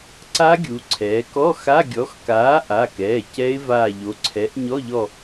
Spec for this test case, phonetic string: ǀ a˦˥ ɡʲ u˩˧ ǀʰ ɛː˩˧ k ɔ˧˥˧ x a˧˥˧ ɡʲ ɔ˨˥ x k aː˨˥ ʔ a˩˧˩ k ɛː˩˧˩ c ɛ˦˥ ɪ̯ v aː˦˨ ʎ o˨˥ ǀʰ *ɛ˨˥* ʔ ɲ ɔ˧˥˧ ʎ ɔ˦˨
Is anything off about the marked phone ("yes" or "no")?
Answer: no